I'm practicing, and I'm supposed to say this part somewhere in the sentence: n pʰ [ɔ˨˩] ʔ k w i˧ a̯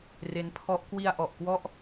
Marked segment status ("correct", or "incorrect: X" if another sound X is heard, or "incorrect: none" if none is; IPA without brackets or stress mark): incorrect: ɔ˦˥